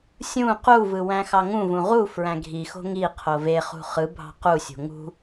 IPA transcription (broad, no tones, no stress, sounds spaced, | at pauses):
sʲ ũ q u v ɯ w æ̃ x ɑ ŋ ũ v ũ ʁ u f ɹ æ̃ ɡʱ i x o̤ ŋ i qʰ o v e χ ṳ χ ɯ bʱ ɑ̤ q u sʲ o̤ ŋ ṳ